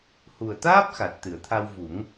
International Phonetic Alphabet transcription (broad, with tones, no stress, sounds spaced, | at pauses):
h u˨˩ ə̯ t̪ aː˦˥ p̚ x a˨˩ t̚ t̪ ɨ˨˩˨ ə̯ t̪ʰ a˧ w v u˨˩˦ ŋ